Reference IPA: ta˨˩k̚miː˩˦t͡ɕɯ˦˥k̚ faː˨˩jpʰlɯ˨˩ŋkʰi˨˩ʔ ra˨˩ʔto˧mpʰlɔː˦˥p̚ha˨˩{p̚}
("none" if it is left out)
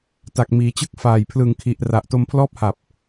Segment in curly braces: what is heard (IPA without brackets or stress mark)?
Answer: p̚